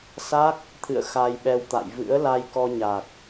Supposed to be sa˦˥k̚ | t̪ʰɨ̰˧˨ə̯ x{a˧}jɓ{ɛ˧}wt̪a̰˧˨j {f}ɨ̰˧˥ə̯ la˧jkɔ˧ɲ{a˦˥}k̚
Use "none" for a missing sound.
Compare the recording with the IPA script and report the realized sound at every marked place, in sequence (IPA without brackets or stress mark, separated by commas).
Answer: a˧, ɛ˧, v, a˨˩